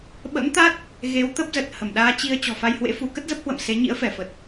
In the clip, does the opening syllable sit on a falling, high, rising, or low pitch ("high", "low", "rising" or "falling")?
rising